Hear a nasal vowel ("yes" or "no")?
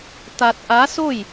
no